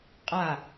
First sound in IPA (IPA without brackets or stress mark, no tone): qʼ